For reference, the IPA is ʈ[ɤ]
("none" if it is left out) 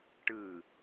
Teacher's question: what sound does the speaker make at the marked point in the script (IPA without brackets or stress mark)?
ɯ